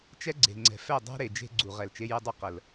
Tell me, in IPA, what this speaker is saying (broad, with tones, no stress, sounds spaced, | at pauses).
t͡ʃ ɛ˦ ɡ͡ǀ e̤˨ ŋ͡ǀ ɛ̤˨ f ɛ˦˨ dˤ æ̤˦ ɾ e˨ d͡ʒ e̤˦ ɡ͡ǀ u˨ ʁ ɛ˨ l t͡ʃ e˦ j ɛ˦ dˤ u˦ q ə˨ l